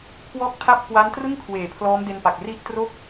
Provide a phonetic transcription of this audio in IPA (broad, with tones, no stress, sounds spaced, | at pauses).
kʰ w ɔː˦˥ k̚ tʰ a˦˥ p̚ k w a˦˥ n t r ɯ˥˩ ŋ kʰ w eː˩˦ pʰ l ɔː˦˥ m d e˧ n p a˨˩ k̚ r i˥˩ ʔ t r o˥˩ k̚